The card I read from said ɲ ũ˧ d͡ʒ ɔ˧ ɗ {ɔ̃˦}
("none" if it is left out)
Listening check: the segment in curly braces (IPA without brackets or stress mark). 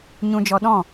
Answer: ɔ̃˦˨